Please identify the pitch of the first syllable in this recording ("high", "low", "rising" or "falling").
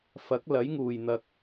rising